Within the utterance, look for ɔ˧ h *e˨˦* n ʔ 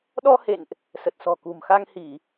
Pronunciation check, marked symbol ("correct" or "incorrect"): incorrect